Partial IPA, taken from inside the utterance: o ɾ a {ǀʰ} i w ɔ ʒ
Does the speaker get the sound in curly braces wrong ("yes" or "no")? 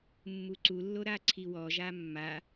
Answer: no